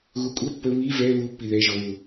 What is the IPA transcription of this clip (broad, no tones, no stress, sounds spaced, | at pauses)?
ɣ u kʷʼ ɐ pː ə β i v ɛ β u pː i ð ɛ ʒ ɔ β u